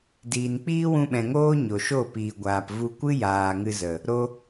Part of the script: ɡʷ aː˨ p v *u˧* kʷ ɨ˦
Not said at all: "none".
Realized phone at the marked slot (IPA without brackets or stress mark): u˧